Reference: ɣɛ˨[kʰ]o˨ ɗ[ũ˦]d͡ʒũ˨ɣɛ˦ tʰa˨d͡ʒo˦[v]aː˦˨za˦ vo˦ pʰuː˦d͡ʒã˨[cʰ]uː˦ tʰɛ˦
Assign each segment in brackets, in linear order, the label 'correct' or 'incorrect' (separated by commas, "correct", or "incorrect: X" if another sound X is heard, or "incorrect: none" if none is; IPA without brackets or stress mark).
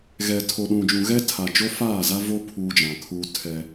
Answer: incorrect: tʰ, incorrect: ũ˨, incorrect: f, incorrect: kʰ